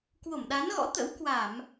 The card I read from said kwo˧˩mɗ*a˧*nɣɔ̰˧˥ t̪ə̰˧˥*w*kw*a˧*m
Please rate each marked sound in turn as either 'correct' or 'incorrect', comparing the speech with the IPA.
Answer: incorrect, correct, incorrect

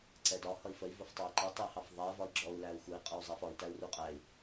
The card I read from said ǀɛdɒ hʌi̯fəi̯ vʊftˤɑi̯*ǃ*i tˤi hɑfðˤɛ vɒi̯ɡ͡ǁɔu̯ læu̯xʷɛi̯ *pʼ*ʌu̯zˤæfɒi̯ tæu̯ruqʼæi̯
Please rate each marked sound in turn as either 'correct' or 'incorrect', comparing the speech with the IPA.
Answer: correct, incorrect

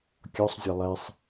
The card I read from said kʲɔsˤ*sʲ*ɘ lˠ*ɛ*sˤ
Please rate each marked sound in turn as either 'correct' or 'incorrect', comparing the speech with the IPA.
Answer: incorrect, correct

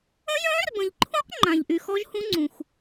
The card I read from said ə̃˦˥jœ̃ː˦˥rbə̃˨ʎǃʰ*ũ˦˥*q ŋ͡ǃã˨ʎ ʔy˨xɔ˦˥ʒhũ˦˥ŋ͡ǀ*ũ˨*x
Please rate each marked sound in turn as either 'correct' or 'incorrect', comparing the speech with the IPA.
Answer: correct, correct

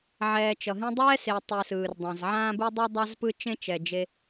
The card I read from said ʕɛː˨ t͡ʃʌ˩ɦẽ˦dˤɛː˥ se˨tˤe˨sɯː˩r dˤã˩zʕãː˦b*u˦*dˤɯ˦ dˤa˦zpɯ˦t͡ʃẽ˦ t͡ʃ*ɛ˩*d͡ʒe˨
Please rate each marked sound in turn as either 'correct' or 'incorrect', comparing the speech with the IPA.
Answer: correct, correct

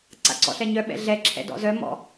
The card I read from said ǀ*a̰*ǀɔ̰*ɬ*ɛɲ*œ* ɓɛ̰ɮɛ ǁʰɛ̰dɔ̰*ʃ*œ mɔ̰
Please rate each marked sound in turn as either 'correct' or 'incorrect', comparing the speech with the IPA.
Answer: correct, correct, correct, incorrect

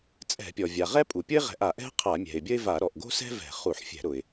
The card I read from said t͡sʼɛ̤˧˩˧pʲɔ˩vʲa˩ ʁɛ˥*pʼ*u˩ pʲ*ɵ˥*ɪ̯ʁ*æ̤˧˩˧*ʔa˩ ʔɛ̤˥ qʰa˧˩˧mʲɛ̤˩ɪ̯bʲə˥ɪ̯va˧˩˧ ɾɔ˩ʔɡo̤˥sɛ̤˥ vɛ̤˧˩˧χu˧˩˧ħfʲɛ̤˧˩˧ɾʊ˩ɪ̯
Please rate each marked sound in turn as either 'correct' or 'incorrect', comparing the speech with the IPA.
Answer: correct, incorrect, incorrect

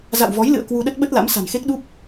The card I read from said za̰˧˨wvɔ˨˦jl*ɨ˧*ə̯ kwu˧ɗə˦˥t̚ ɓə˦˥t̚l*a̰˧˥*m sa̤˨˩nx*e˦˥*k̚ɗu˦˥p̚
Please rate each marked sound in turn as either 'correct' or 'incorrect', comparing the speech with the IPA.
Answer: incorrect, correct, correct

